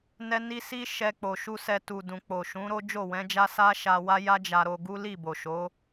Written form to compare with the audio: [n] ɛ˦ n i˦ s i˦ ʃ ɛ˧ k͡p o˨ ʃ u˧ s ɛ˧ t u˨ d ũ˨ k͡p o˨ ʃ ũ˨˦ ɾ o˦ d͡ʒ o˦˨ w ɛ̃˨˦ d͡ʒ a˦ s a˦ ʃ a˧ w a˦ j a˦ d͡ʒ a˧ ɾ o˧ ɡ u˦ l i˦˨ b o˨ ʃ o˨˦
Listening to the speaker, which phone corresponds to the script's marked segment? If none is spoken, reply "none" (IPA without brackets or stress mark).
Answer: n